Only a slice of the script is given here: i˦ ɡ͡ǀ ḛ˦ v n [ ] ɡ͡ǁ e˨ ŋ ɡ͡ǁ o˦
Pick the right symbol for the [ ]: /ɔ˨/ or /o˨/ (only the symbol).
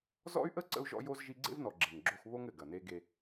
ɔ˨